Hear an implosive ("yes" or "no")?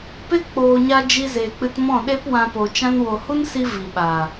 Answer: yes